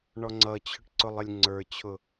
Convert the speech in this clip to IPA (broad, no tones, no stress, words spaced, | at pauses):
ɳɔŋ͡ǀʌt͡ɕʰʊʈ ǀʊlˠɪlʲŋ͡ǀə˞t͡ɕʰʊ